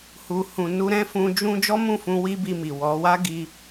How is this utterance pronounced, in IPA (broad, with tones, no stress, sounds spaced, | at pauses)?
h u˨ h ũ˨ n u˧ ɾ ɛ̃˦ f ũ˧ d͡ʒ ũ˦ d͡ʒ ɔ˦ m ũ˦˨ f ũ˧ w i˦ b i˧ m i˨ w ɔ˨˦ w a˦ ɡ i˧